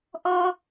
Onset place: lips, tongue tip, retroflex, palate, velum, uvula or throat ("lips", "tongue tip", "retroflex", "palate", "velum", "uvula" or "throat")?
throat